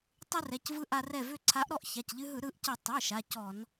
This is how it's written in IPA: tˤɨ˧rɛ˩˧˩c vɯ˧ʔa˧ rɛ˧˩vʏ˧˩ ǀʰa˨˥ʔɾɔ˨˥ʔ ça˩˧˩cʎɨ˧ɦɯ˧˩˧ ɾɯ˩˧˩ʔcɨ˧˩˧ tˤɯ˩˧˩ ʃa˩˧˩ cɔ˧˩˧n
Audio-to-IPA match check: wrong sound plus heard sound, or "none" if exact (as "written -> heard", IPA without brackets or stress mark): none